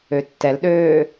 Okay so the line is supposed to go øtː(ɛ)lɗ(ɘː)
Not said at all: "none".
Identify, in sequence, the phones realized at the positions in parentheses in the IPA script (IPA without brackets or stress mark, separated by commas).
ɛ, øː